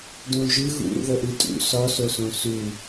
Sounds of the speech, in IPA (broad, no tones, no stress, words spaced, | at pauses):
dõʒɯ ɣṵ ɾṵðɤʔɯtʼṵ sɔsosõ su